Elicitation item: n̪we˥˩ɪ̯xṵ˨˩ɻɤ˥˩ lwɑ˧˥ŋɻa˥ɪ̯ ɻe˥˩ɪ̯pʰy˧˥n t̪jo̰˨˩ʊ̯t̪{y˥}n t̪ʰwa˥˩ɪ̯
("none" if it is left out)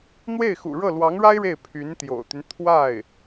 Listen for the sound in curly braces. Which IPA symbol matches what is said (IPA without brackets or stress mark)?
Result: y˦